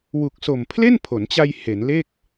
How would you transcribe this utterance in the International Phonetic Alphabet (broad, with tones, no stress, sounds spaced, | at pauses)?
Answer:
w u˨˩ k̚ s o˨˩ m pʰ l e˥˩ n pʰ o˩˦ n t͡ɕ a˧ j h e˩˦ n l e˥˩ k̚